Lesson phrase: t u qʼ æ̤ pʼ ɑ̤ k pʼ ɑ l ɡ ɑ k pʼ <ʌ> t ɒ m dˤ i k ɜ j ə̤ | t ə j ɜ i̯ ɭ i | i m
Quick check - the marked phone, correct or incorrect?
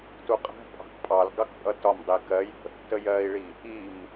correct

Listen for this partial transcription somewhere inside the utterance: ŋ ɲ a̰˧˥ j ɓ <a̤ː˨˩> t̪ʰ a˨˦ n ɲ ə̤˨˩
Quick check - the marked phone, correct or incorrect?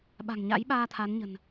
incorrect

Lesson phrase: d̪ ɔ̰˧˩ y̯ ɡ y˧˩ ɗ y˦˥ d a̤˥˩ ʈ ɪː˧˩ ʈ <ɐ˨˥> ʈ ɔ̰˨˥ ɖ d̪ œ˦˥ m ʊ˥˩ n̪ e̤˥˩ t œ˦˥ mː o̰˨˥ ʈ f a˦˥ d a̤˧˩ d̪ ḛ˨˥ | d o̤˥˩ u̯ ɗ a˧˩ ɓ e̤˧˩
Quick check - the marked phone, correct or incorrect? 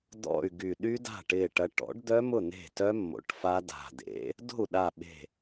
correct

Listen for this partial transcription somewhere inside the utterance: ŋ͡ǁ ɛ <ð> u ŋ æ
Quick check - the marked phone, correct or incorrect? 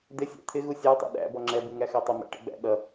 incorrect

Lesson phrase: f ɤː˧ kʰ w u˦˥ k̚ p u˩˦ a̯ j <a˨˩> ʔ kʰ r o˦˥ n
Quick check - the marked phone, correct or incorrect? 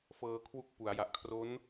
correct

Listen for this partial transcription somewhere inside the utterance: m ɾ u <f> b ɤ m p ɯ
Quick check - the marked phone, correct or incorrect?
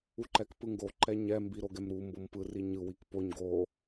incorrect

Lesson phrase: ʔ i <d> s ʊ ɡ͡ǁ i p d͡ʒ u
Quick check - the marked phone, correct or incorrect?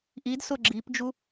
correct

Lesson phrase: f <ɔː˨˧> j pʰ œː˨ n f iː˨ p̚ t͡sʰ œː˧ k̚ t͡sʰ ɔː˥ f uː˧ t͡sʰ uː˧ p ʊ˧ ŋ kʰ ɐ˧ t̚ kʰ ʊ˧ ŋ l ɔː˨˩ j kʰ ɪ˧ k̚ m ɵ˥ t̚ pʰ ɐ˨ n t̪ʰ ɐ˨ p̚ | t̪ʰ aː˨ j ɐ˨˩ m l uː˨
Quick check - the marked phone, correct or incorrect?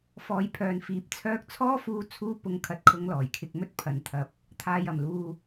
correct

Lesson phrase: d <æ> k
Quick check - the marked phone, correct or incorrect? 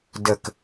incorrect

